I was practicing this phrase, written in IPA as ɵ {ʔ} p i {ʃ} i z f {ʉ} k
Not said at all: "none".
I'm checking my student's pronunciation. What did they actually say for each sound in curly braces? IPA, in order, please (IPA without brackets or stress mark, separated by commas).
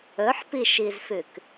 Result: ħ, ʃ, ʉ